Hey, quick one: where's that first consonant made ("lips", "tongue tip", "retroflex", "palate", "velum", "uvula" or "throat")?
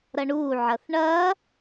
tongue tip